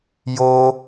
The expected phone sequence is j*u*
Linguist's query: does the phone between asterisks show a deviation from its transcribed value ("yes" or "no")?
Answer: yes